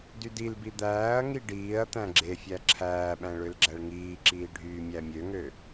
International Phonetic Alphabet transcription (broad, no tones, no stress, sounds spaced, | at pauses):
d y d i l b i d̪ æː ɐ̯ ŋ i ɖ iː ɐ̯ t̪ æ̃ ɡ͡ǁ e fʲ æ ǁʰ æː ɓ æ̃ ɭ ø l ɡ͡ǁ æ ɭ ŋ iː ǁ iː ɖʱ yː mʲ æ mʲ ø ŋ ø